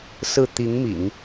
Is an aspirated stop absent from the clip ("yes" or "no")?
yes